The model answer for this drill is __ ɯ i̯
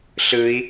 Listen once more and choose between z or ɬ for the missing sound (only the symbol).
ɬ